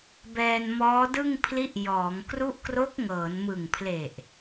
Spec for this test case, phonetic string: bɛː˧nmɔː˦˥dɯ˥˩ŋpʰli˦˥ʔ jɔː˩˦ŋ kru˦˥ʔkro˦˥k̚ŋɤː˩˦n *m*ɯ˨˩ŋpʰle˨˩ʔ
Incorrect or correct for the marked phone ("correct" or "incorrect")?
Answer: correct